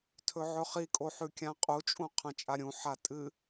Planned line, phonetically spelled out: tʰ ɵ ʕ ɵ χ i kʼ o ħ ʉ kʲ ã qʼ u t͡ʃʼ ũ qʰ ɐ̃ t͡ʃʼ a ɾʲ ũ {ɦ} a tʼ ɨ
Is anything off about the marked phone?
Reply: yes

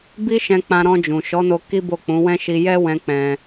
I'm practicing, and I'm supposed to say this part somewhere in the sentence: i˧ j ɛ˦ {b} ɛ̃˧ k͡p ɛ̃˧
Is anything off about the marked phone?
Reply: yes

